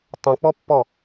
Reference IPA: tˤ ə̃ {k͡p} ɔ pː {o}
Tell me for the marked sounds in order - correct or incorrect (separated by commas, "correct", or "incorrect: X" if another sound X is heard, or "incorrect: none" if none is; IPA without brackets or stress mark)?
correct, incorrect: ɔ